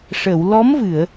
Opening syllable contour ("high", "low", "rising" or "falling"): low